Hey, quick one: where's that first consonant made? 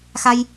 velum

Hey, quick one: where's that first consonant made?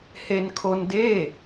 throat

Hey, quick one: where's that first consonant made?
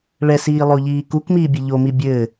retroflex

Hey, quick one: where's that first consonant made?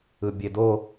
lips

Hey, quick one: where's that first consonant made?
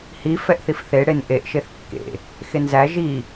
throat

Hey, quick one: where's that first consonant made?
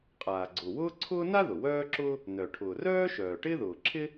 uvula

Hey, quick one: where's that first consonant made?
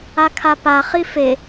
velum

